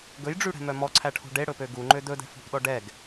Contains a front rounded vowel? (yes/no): yes